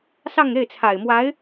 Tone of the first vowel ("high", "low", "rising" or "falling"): falling